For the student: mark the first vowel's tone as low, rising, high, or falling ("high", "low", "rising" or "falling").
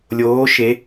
rising